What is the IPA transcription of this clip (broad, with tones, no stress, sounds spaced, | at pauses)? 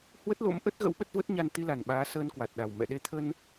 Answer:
h w ə˦˥ t̚ l o̰˧˥ m ʔ ə˦˥ t̚ ɣ ə̰˧˥ w ɓ ə˦˥ t̚ v ə˦˥ t̚ ɲ a˧ n t̪ i˧ l a˨˩ n ɓ aː˨˦ s əː˧ n k w a˨˩ t̚ ɗ a˨˩ w m ɛ̰˧˨ ɗ e˧ t̪ʰ ə˧ n